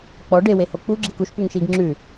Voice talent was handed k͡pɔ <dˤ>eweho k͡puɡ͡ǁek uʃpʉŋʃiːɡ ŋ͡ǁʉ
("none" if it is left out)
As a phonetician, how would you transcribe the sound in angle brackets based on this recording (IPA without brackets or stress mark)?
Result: ɖ